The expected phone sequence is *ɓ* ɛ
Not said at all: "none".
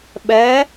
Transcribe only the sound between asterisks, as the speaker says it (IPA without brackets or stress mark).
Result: ɓ